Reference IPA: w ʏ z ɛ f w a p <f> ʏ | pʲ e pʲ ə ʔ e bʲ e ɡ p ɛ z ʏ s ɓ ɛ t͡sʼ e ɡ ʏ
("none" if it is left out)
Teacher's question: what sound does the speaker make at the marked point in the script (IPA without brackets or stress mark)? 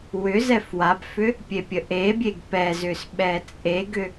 f